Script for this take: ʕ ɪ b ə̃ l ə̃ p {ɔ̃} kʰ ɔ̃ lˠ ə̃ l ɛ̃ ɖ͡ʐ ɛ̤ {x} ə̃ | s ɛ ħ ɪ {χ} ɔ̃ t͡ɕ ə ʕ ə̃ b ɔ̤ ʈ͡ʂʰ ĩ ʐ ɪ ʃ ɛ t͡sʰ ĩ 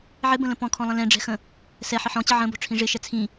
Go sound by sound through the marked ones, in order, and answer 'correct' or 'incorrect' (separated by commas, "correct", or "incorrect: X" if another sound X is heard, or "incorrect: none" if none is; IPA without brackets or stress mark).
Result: correct, correct, incorrect: ħ